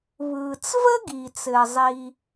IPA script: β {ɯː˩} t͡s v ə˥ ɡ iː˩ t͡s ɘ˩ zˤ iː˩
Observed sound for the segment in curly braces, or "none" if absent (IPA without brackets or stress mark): ɯː˩